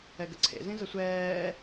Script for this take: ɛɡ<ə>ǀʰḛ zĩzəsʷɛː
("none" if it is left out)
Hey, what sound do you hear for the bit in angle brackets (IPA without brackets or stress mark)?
ə